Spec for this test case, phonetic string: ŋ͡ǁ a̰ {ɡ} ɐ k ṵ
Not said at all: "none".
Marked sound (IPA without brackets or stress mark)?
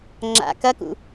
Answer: k